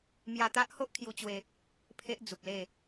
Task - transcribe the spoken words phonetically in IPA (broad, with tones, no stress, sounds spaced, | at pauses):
m j a˧ t̪ a˦ ʔ h o˦ ʔ kʰ j u˧ t͡ɕ w e˧ | pʰ e˦ ʔ d͡z u˨ p̚ l e˥˧